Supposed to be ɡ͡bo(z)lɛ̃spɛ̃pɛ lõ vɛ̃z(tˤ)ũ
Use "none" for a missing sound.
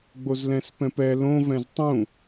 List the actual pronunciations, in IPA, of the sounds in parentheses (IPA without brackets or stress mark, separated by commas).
z, tˤ